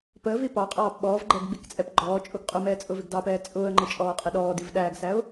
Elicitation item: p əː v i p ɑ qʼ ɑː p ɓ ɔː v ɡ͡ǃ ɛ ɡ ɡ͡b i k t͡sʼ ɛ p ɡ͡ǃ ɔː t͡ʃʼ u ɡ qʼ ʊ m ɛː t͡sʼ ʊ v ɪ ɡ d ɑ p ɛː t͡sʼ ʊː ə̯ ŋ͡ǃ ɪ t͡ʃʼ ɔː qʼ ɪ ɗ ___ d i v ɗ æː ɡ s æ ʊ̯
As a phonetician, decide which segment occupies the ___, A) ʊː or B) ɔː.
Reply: B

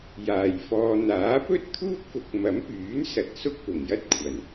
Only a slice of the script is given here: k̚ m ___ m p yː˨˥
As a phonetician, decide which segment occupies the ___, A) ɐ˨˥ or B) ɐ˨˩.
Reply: A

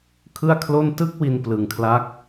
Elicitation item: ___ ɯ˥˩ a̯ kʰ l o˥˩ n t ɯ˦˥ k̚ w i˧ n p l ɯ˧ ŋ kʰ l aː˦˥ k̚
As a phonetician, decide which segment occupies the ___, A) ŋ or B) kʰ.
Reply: B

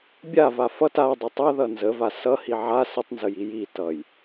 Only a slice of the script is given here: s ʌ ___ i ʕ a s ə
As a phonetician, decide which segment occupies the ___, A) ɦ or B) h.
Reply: B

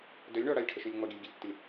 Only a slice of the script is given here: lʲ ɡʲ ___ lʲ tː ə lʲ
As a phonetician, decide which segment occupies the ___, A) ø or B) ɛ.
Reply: A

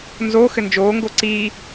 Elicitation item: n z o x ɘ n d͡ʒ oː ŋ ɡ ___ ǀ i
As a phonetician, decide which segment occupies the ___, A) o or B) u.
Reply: A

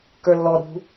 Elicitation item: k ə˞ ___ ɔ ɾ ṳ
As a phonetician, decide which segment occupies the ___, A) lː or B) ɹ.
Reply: A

